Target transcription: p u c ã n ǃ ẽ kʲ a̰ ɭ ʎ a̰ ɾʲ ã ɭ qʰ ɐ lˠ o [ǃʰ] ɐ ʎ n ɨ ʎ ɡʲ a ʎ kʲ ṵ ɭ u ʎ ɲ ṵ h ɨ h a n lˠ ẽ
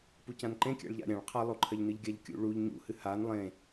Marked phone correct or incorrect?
correct